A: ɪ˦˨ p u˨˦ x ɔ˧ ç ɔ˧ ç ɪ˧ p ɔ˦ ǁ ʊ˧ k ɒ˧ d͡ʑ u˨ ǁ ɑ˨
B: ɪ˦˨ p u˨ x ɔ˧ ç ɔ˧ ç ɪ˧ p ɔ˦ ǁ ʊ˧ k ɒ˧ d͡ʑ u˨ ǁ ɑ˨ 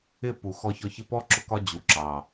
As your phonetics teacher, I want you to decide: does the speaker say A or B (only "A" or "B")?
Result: B